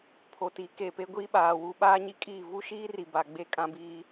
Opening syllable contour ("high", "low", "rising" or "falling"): low